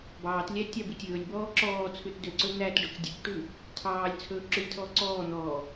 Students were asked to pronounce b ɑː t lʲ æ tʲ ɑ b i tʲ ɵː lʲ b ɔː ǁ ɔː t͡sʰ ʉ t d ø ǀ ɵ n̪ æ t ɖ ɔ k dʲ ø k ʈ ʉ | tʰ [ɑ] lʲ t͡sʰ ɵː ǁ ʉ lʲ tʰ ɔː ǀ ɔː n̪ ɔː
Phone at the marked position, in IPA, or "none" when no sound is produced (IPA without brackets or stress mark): ɑː